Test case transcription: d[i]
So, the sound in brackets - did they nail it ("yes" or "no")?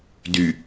no